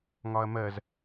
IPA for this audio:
ŋ ɒ ɐ̯ m ɜ z

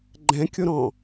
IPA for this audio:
ɡ͡ǃ ɛ̃ kʲ o ɾ ɔ̃

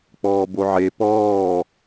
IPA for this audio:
k͡p ɔː b o ʕ e p ɔː

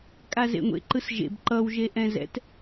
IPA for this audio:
kʼ a z ḛ ŋʷ ḛ ǃ ɯ s ʒ ḛ b ǃ ʌ w ʒ e ʔ ɛ̃ z ɛ̰ t

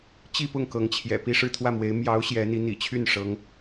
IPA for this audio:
t͡ɕ i˥˧ p ʊ˥˩ ŋ k ɤ˧˥ ŋ t͡ɕʰ j ɛ̰˨˩ p i˥˧ ʂ ɻ̩˥˧ t̪ʰ w ä˥˩ m w e˧˥ ɪ̯ m j ɑ˧˥ ʊ̯ ɕ j ɛ˧˥ n̪ i˧˥ n̪ ḭ˨˩ t͡ɕʰ y˥˩ n ʂ ɤ˧˥ ŋ

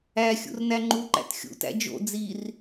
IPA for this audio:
æ xʲ ṵ r n æ ŋ͡ǃ u ǃ æ̰ t xʲ ṵ t æ̰ d͡ʒ o̰ d͡z i r

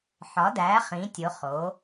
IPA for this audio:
ħ ɒ˨˥ d æ˨˥ χ ĩ˨˥ tʲ o˨˥ χ o˨˥

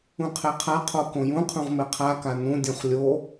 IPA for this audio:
ũ qʰ e qʰ a qʰ o k õ j ũ qʰ ũ ʁ m e qʰ a k a n ũ dʲ õ χ lʲ o

